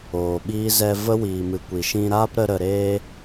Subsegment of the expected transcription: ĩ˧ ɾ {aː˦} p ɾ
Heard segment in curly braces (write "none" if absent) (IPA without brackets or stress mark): aː˦